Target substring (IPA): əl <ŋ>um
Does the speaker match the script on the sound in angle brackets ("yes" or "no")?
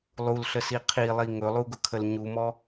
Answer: no